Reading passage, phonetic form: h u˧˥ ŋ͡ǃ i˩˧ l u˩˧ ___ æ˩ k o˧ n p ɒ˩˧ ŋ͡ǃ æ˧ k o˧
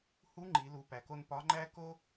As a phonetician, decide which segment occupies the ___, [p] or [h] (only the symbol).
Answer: p